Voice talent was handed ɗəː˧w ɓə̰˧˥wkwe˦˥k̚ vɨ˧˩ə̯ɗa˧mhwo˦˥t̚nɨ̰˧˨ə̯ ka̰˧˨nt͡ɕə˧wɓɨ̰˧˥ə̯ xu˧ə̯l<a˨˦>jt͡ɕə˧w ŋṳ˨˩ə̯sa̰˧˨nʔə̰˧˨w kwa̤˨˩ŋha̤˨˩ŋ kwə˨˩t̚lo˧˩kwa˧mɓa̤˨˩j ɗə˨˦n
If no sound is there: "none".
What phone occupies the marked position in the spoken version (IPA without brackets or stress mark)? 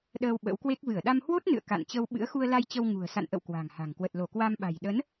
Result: a˧